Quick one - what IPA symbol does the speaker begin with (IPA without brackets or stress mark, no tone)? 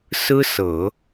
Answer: s